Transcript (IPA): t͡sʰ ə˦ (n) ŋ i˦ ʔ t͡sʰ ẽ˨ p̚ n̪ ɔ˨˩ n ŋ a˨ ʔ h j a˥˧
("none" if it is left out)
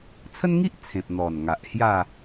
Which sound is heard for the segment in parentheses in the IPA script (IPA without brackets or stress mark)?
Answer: n